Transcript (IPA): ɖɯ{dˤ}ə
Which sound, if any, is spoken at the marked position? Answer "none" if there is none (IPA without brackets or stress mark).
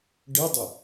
dˤ